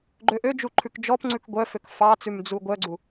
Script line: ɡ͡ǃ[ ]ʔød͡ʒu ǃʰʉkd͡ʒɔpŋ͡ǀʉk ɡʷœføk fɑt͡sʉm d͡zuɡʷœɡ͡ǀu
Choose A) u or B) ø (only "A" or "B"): B